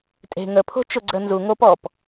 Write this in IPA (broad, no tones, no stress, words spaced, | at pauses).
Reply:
tʼe̤ ŋə pʰo̤t͡ʃʊ ɡ͡ǀə nzu ŋop ɔp